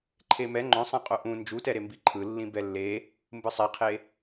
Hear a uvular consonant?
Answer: yes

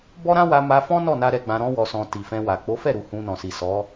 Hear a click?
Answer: no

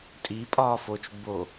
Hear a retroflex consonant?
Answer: no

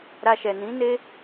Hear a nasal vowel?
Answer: yes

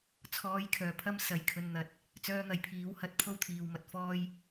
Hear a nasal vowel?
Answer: no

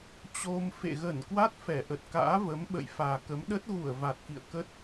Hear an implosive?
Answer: yes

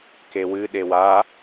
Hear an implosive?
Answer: yes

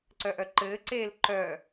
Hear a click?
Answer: yes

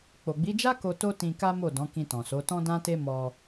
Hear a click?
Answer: no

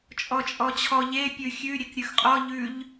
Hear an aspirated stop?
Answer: yes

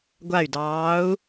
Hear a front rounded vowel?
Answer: yes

